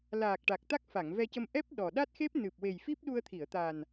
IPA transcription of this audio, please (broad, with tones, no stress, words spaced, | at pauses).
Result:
laː˨˩k̚ ʈa˨˩k̚t̪a˦˥k̚ fa˨˩˨ŋvɛ˧cə˧m ʔɛ˦˥p̚ ɗɔ˨˩ɗa˦˥t̚xe˦˥p̚ nɨ˨˩p̚we˨˩j fi˦˥p̚ɗu˧ə̯t̪ʰi˨˩˨ə̯t̪a˨˩n